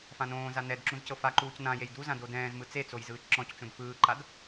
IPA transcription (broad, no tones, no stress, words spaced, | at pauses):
fãnõːza nɛd ǁũzcɤfaǃuːc nãjej duzã dodɛ̃ːzmɯ t͡set͡soj zɯːt͡ʃǁɔ̃ct͡ʃõd fɯːǃad